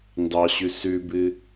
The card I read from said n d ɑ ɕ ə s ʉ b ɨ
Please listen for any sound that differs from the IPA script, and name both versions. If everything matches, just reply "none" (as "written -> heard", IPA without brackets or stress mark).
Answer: ə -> ʉ